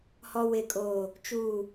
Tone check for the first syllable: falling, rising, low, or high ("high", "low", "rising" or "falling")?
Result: high